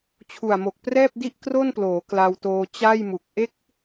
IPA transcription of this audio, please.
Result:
t͡ɕʰ u˨˩ a̯ m o˨˩ k̚ p r ɛː˥˩ p̚ d i˥˩ ʔ k r o˥˩ n p l oː˩˦ k l a˧ w t oː˧ t͡ɕ a˥˩ j m u˨˩ k̚ ʔ e˦˥ k̚

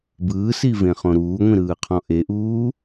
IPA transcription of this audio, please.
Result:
b ɯː s i v ẽ χ õ ɾ uː ŋʷ ĩ ɾ ɯː qʰ ɔ̃ ʔ e ʔ uː

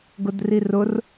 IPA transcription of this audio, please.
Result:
ɡ ʊ d r i r ʊ r

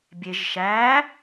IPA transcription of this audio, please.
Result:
bʲ e ʒ ʃ æː

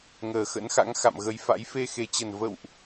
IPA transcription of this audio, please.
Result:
ŋ əː˨˩ x ə̰˧˥ n x a̰˧˥ ŋ x a̰˧˨ m ɣ ə˨˦ j f a̰˧˥ j f e˧ x e˨˩ t͡ɕ ə˨˩ n v ə̰˧˨ w ʔ

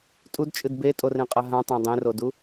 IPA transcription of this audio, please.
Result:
tʼ u d t͡ʃʼ ɨ d b e tʼ o r ẽ qʼ ɐ ɦ ã tˤ ã dˤ ẽ r o d u

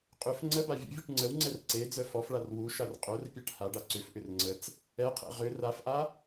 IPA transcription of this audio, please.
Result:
qʼ ʏ f ŋ͡ǀ ə b a vʲ ə̰ vʲ u ʈ ŋ͡ǀ ə w ŋ͡ǀ ɛ r ǀ e d͡z œ f ɔ f ɭ a r w u ʃ a r qʼ œ r pʲ a ʈ h a ɖ a ǀ ʏ f ʔ ʏ r ŋ͡ǀ ə t͡s | ɛ qʰ ɛ̰ ʁ ʏ r a f ʔ a

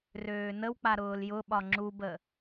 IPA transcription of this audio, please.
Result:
r øː n ə w k͡p a ɾ ʊː l j ʊ ɓ ɒ ŋ͡ǁ u b ə

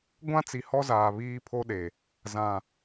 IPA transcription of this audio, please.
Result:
ɡʷ ã˦ t͡s i˨ h ɔ˦ z aː˨ β iː˦ pʰ o˦ ɗ e˨ | z ã˨

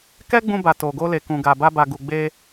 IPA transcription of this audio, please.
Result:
k ɛ˦ ɡ͡b ũ˧ b a˨ t o˨ ɡ o˧ l e˨ k ũ˨ ɡ a˨ b a˧ b a˨ ɡ u˨ ɡ͡b e˧

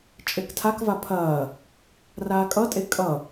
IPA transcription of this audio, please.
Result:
t͡ʃʼ e k tʰ a k v a pʰ ɐː | r aː kʼ ʌ tʼ e kʼ ʌ

